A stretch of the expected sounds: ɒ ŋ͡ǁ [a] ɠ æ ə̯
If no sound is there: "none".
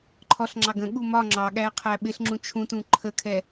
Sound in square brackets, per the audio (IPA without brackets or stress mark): ɑ